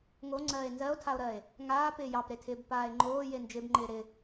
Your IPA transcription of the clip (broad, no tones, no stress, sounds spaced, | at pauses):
ŋ o ŋ͡ǀ ɜː e̯ n z ɜ o̯ tʰ a o̯ ɾ ɜ e̯ | ŋ aː p ɪː j ɑ p ɾ e tʰ ɪː b p aː e̯ ŋ͡ǃ oː j e n d͡ʒ ɪ b ŋ͡ǃ ɪː ɾ ɪ